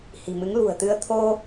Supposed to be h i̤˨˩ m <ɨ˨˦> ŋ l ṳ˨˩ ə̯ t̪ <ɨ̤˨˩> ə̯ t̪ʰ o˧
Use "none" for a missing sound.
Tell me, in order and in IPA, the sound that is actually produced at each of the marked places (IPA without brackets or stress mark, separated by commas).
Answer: ɨ˨˦, ɨ˧